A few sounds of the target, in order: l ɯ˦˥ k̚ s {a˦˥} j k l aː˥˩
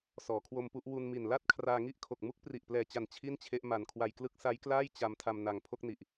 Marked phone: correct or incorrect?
correct